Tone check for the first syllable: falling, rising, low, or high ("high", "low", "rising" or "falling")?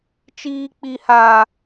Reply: high